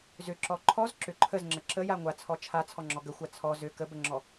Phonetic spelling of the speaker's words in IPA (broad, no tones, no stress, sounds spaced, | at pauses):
z ʏ ǁ ɔ ǃʰ ɔ z ǁ ʏ ǃʰ ə z ŋ͡ǁ ə ǁ ə j a ŋʷ a t͡sʰ ɔ t͡ʃʰ a t͡sʰ ɔ ŋ͡ǁ ɔ ɡ ə xʷ a t͡sʰ ɔ z ʏ k ə b ə ŋ͡ǁ ɔ